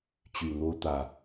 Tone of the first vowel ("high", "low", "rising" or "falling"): low